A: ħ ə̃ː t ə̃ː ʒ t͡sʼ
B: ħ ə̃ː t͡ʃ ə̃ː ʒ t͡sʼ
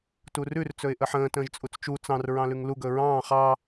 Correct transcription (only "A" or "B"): A